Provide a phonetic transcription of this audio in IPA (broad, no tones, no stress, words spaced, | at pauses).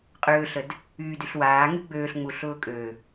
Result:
qʼøːɬəd | yːdyɬwaːŋy ɡ͡bøːɬŋ͡mu ɬʊːkʼø